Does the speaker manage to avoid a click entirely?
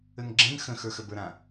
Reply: no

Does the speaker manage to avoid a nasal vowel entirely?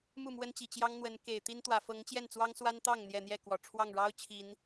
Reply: yes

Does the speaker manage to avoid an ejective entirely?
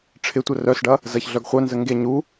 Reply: yes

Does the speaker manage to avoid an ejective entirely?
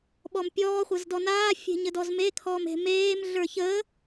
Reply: yes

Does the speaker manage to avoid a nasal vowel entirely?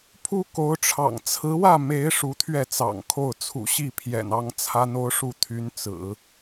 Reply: yes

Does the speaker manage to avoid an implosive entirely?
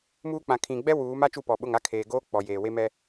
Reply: no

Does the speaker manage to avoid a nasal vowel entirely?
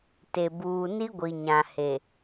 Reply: no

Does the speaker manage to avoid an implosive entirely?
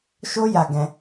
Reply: yes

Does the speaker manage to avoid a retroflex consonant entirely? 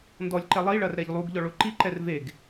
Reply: no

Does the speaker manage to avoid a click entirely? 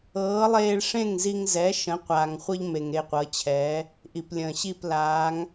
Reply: yes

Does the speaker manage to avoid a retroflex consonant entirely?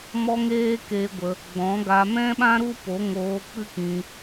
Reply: yes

